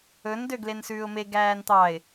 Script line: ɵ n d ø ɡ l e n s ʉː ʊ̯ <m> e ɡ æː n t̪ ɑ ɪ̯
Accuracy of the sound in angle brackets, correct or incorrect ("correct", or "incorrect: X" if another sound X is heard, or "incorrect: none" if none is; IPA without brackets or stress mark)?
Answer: correct